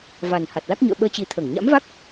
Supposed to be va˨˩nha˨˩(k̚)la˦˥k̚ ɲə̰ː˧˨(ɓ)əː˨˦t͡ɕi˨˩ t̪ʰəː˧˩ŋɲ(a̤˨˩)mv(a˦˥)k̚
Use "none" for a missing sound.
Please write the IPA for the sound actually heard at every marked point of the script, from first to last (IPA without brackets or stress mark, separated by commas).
t̚, ɓ, a̰˧˥, a˦˥